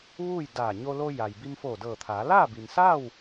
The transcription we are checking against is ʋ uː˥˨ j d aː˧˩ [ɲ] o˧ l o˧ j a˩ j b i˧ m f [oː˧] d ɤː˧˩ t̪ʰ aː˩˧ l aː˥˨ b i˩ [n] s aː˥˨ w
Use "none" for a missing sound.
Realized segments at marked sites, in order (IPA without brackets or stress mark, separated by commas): ɲ, oː˧˩, n